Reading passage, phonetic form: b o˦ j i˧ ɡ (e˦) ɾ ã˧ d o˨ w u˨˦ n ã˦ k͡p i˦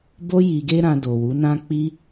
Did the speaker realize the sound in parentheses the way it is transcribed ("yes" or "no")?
yes